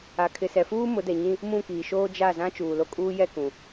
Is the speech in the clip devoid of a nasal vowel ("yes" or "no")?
no